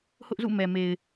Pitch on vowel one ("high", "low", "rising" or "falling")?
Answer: high